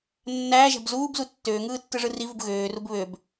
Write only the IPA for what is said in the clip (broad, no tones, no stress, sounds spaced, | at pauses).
nː æː ʒ æ̤ b z uː b z u tː øː ŋ ɯː tː ɯ ʐ ɯ r i v u b ɣ øː r u b β ø b